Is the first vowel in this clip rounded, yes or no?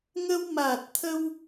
no